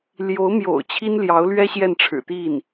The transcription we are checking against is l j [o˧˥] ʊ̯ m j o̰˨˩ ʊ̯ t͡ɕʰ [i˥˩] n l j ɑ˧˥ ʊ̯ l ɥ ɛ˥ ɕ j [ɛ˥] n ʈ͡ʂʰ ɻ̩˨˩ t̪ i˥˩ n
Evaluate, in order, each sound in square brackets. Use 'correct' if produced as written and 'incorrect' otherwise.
correct, incorrect: i˥, incorrect: ɛ˥˩

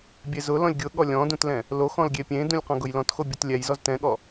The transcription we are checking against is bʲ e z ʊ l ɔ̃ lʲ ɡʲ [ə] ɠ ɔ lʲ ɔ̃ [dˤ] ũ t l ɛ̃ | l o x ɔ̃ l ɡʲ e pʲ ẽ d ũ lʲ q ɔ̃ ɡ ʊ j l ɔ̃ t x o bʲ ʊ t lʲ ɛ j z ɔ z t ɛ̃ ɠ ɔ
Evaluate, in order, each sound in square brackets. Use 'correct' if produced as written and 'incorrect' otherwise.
incorrect: ʊ, incorrect: d

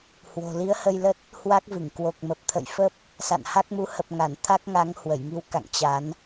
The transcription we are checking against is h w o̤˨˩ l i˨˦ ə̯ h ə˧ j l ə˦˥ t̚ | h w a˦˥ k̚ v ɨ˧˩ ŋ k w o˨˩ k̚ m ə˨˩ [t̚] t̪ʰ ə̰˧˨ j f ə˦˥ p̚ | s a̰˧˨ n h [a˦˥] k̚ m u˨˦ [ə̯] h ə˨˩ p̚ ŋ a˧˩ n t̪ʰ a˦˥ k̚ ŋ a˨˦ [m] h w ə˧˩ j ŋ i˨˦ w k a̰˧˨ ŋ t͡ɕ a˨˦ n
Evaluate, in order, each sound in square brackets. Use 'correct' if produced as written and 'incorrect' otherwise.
incorrect: p̚, correct, incorrect: none, incorrect: ŋ

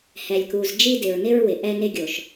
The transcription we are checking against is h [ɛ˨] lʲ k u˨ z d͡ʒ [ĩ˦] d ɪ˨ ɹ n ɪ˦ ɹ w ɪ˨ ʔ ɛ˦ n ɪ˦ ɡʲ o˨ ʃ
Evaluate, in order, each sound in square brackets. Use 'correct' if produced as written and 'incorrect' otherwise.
correct, incorrect: i˦

